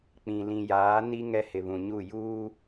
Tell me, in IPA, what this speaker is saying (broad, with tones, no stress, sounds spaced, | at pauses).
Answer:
k͡p ĩ˨ l ĩ˨ j aː˨˦ n i˦ ŋ ɛ˦ h ɪ˨ β ũ˨ ɲ u˦˨ j uː˦